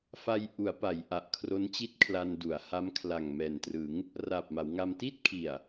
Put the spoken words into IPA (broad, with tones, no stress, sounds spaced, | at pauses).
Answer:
f a˧ j ʔ u˩˦ a̯ p a˩˦ j ʔ a˨˩ ʔ kʰ r o˦˥ n t͡ɕ i˥˩ t̚ kʰ l a˧ n d u˩˦ a̯ h a˦˥ m kʰ l a˨˩ ŋ m ɛː˨˩ n t r ɯ˩˦ ŋ | r aː˨˩ p̚ m a˩˦ w ŋ a˧ m t i˥˩ t̚ kʰ i˨˩ a̯